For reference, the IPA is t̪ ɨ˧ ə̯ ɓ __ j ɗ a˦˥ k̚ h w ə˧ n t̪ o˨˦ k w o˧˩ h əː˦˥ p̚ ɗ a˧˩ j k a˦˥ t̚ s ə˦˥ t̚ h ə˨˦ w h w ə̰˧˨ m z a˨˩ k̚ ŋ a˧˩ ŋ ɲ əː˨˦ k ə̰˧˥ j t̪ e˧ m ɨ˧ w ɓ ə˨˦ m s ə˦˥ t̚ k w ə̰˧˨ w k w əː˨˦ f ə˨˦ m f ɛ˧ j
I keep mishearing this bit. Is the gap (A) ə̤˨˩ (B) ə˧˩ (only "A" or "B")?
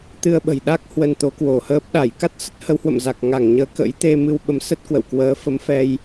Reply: A